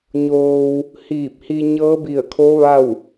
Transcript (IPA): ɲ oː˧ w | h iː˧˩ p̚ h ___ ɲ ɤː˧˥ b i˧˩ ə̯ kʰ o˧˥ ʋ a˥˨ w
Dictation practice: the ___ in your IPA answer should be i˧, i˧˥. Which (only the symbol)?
i˧